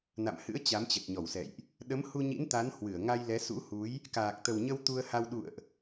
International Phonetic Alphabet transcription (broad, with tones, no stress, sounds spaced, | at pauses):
n a̰˧˨ m h ɨ̰˧˥ ə̯ t͡ɕ a˨˦ m t͡ɕ ə˨˩ t̚ ɲ ɔ˧˩ w s ɛ̰˧˨ j ʔ | ɗ ə˨˦ m h u˧ ɲ ḭ˧˥ n t̪ a˨˦ n h w ɨ˧˩ ə̯ ŋ a˧ j l ɛ˨˦ s ṵ˧˥ h u˨˦ j | k aː˨˩ k̚ t̪ ə˨˩ w ɲ ə˧ w t̪ u˧ ə̯ h a˧ w ɗ ṵ˧˨ ə̯ ʔ